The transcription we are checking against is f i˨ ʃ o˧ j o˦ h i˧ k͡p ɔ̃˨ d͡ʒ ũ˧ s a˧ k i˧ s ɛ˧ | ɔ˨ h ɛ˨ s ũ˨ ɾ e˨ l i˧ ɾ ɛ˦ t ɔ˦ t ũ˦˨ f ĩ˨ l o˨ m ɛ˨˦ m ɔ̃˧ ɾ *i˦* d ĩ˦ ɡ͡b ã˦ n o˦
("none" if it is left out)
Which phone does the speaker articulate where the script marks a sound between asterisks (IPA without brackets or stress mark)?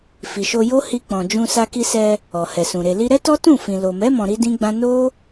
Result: i˦